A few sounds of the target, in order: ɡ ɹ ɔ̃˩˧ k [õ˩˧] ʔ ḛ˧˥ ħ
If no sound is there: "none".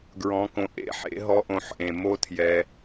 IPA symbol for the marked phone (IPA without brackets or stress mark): õ˩˧